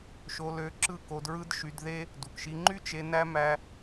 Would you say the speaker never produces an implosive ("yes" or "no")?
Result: yes